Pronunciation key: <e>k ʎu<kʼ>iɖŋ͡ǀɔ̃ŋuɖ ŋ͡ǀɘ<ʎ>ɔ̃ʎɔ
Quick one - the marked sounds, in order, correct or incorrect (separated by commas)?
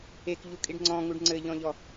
correct, correct, correct